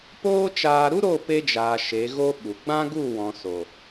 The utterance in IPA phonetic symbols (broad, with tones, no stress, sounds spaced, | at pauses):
p oː˦ t͡ʃ aː˧ ɾ u˦ ɾ o˦˨ p e˧ d͡ʒ aː˨ ʃ e˨˦ ɣ o˦ ɓ u˨ ɡ͡b ã˦ ɡ u˦˨ w ɔ̃˨ s o˨